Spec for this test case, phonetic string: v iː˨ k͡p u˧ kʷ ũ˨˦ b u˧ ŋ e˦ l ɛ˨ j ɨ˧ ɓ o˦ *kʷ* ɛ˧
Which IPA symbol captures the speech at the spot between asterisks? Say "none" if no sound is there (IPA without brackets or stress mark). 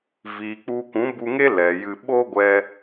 ɡʷ